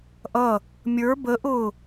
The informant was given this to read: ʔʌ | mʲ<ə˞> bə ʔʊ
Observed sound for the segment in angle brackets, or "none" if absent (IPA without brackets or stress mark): ə˞